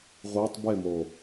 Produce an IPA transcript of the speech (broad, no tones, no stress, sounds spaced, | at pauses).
ʁʷ e tˤ b e m o